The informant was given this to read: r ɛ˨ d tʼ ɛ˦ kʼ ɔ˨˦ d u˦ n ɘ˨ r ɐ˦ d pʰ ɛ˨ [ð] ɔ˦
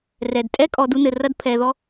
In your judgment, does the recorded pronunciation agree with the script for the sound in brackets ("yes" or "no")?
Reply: yes